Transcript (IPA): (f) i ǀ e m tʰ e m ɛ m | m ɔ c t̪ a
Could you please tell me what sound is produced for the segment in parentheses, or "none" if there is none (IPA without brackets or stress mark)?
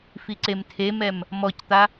f